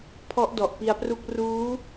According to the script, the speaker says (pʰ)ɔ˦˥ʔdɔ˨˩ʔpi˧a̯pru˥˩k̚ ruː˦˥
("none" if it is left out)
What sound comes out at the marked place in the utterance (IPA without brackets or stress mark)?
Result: pʰ